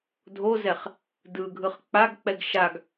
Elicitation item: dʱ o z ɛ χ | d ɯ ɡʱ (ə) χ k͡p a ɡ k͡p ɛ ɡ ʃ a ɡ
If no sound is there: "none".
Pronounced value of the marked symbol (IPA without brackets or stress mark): ɯ